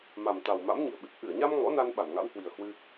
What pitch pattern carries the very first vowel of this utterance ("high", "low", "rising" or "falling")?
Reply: low